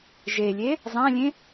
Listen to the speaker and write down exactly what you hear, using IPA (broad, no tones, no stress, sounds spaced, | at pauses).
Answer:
ʒ e lʲ e | zˤ ã lʲ ẽ